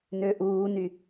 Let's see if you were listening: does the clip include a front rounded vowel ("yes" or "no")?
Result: yes